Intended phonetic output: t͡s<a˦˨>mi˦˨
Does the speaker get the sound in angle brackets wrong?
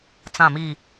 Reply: yes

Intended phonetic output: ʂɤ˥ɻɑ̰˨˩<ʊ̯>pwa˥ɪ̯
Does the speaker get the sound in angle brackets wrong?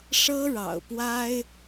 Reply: no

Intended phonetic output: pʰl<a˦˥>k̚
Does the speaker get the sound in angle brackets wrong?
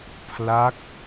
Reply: no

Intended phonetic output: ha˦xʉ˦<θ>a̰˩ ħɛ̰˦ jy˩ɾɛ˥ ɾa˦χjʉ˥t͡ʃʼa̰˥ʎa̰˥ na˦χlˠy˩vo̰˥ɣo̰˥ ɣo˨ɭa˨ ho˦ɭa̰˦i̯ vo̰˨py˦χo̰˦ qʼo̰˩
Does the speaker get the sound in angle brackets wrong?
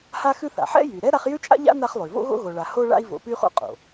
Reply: no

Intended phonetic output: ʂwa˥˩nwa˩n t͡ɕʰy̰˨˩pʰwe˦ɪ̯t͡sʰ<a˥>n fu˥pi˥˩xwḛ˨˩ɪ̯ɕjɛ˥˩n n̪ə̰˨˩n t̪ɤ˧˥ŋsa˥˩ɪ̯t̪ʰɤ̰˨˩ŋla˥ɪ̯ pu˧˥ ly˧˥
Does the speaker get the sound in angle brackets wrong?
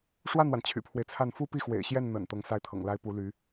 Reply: yes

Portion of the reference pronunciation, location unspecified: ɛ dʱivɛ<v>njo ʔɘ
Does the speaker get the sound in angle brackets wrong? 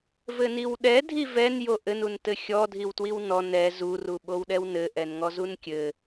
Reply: yes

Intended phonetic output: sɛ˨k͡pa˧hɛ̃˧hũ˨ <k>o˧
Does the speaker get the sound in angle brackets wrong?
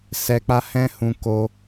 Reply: no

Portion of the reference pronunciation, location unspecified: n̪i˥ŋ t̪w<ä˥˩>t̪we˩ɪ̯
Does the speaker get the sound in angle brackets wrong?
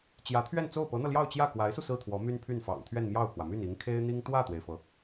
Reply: no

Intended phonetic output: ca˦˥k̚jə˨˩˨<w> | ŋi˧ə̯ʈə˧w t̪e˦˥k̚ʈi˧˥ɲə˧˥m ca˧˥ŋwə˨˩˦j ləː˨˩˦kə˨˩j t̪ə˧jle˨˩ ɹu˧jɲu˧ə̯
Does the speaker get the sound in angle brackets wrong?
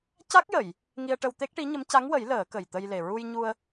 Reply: yes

